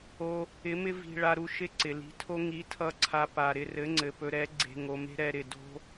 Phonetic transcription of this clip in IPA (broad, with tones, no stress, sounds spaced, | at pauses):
o˧ | ɪ˨˦ m ɪ˦ v i̤˧ ɭ a˧ ɾ u˧ ʃ ɪ˦ ǀ ɪ˨ l i̤˧ tʰ o˦ ŋ i˨˦ tʰ ʌ˧ ǀʰ a˧ p a˧ ɾ ɪ˧ r ɘ˨˦ ŋ͡ǀ ɘ˨ p ɵ˧ ɾ ɛ˨˦ ɡ͡ǀ e̤˧ ŋ o˧ m e̤˦ ɾ ɛ˧ ɾ ɪ˨ d o̤˦